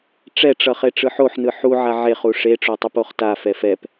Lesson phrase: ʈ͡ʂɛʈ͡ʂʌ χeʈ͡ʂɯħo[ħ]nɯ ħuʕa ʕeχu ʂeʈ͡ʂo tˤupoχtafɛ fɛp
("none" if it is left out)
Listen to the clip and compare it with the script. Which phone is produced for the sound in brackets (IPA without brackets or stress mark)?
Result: ħ